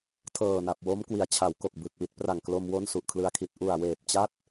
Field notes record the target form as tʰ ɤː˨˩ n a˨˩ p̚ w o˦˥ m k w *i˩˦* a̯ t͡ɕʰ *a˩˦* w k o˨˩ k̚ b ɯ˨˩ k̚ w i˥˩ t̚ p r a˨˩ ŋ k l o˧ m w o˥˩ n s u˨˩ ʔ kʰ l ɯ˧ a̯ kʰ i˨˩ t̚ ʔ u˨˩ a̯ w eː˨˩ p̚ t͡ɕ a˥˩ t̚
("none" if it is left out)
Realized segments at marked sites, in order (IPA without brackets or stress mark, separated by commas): i˩˦, a˩˦